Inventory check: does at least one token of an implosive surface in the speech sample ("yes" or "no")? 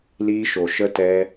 no